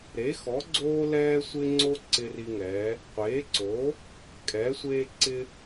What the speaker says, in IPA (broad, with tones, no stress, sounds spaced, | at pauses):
ɾ e˩˥ x ɔ˩˥ ɡ͡ǀ oː˦ l ɛː˦ sʷ ɪ˦ ŋ͡ǀ o˦ ǀ ɪ˦ r i˦ ŋ ɛ˩˥ | qʷ eː˩˥ ǀ o˩˥ | kʼ ɛː˩˥ sʷ eː˦ ǀ ɪ˦